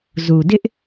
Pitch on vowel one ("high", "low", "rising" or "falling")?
low